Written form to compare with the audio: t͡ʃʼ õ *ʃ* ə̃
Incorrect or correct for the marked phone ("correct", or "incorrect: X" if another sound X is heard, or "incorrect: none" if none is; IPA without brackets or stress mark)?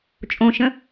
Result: correct